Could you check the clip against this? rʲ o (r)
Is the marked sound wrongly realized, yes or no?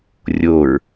yes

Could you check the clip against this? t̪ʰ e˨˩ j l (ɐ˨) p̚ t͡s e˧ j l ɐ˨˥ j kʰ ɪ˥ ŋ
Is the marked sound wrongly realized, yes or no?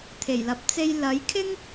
yes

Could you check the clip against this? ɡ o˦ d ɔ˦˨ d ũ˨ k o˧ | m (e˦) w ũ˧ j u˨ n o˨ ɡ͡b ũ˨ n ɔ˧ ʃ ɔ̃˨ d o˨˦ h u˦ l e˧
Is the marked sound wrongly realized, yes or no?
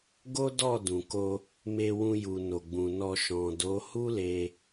yes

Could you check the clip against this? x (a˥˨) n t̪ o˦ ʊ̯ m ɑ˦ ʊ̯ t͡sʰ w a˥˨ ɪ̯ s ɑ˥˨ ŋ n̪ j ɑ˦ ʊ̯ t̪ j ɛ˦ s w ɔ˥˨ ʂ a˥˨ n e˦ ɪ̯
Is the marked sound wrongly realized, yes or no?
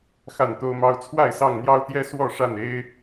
no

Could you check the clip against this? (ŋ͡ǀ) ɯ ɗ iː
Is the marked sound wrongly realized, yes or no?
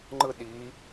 yes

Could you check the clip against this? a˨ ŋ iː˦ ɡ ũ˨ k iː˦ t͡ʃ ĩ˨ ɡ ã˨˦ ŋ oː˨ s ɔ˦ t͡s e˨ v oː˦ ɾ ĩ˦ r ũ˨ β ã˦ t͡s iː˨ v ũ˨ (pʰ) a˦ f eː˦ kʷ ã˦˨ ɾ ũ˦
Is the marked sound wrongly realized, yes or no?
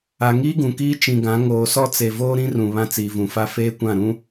yes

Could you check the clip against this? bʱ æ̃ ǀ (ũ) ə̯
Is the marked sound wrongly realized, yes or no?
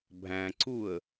yes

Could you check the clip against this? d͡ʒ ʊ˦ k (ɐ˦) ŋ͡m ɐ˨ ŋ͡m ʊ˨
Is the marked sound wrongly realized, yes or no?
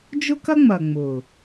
no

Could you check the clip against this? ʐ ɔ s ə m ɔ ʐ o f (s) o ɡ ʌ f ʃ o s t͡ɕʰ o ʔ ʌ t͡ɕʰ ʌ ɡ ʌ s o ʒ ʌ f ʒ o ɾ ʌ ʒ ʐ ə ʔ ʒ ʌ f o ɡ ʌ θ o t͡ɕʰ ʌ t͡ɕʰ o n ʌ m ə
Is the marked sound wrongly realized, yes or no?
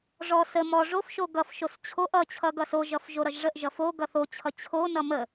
yes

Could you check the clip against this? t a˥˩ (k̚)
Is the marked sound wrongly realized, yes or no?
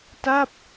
yes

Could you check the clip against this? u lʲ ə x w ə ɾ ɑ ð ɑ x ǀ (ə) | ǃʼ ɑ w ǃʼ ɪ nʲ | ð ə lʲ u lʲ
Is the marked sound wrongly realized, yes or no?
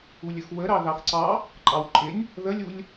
yes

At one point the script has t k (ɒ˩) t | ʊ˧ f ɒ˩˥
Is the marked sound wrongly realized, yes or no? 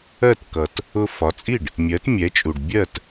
yes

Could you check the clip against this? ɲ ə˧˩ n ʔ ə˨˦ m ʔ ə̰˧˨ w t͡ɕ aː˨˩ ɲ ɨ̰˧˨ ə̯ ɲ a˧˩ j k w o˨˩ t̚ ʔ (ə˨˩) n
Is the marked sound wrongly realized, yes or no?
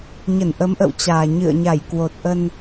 yes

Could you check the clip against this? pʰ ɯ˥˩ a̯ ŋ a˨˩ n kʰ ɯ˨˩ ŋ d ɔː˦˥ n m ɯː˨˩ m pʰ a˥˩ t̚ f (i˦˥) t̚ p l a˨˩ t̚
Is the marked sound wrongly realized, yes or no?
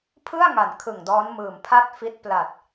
no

